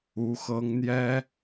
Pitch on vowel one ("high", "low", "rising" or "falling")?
rising